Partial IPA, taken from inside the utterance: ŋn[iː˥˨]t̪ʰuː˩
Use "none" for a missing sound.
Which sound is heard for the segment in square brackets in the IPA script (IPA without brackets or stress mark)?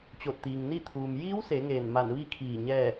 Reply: i˥˨